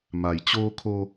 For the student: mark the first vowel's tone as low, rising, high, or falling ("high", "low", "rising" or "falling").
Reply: low